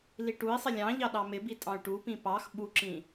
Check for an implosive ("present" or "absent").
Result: present